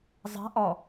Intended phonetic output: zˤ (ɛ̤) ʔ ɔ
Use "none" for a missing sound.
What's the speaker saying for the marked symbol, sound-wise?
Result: ɛ̤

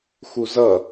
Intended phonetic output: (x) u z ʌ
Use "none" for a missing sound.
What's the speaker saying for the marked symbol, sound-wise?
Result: x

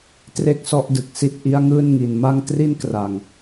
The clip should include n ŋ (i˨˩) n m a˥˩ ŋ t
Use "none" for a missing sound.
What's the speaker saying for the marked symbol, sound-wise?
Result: i˨˩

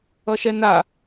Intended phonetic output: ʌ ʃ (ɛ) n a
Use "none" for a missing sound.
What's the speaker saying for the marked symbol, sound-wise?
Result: ɛ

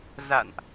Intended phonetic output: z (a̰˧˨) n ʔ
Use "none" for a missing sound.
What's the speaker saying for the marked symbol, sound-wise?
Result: a̰˧˨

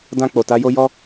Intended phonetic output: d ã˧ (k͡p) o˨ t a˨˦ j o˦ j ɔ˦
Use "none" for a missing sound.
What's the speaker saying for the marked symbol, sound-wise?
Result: k͡p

